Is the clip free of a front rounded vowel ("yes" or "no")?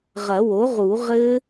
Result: yes